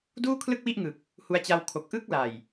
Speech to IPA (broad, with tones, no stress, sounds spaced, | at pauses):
d uː˥˩ kʰ l ɯ˥˩ k̚ w i˥˩ ʔ ŋ ɯ˨˩ k̚ | h u˧ a̯ t͡ɕ a˧ w kʰ o˨˩ k̚ ʔ ɯ˦˥ k̚ l a˨˩ j